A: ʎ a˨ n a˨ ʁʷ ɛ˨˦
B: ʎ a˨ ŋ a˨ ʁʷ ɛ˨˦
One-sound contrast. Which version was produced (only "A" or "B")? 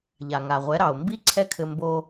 B